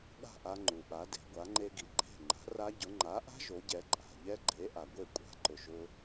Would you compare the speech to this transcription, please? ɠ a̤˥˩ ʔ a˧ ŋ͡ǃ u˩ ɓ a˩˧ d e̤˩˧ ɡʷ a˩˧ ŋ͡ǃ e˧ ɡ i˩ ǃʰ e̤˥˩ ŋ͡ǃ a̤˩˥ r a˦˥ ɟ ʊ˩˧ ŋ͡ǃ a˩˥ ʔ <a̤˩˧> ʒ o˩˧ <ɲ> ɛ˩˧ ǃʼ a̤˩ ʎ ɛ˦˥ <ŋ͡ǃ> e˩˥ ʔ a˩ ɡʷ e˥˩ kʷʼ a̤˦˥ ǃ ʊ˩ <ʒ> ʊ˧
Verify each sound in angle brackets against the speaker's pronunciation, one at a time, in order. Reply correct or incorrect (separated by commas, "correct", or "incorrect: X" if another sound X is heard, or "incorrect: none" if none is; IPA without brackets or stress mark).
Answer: incorrect: a̤˦˥, incorrect: ɟ, incorrect: ɡ͡ǃ, correct